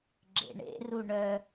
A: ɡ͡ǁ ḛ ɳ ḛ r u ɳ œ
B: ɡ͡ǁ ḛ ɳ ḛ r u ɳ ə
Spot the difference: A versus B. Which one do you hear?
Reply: A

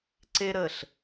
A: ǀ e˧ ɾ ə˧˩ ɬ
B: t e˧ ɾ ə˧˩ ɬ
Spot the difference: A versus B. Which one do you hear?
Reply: A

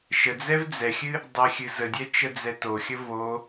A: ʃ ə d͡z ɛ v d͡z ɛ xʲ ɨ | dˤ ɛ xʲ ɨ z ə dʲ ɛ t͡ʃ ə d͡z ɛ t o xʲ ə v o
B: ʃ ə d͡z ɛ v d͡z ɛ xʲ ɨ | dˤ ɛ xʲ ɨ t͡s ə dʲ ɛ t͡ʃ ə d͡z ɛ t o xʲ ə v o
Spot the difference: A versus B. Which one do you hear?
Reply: A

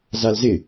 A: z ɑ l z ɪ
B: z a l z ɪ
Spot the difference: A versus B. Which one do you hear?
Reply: B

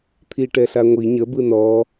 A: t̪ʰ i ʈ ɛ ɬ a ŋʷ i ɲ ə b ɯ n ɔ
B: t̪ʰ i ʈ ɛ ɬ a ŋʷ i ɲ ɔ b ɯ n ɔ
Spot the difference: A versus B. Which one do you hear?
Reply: A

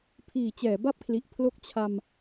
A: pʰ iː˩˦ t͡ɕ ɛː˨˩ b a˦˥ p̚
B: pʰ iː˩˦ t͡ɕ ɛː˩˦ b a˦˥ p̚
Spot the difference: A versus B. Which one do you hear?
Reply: B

